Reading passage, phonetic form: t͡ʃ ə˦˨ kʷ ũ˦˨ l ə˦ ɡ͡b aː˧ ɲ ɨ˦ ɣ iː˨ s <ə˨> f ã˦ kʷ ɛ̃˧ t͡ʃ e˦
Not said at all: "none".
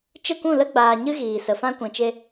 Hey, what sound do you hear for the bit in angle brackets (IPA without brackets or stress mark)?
ə˨